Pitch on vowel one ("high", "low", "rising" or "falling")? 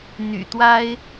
low